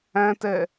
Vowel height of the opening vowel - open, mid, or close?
open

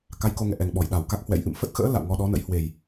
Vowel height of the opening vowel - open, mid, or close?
open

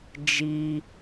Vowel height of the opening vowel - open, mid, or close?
close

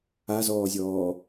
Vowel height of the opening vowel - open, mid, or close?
open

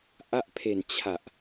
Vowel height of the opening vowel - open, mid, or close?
open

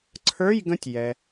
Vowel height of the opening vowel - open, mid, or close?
mid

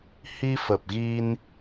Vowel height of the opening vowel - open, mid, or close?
close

